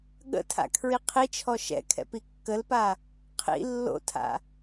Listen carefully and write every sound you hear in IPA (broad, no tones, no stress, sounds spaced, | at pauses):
ɠ ə̰ tʰ a̰ kʰ ɹ i qʰ i t͡ʃʰ ɔ ʃ ɛ̰ kʰ ɛ̰ p i kː ə l p a | qʰ ḭ lː o̰ tʰ a̰